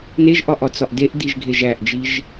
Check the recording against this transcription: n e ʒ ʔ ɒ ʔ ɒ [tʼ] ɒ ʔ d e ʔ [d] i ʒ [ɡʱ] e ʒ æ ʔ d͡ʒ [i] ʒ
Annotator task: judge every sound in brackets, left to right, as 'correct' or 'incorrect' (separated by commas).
incorrect, correct, correct, correct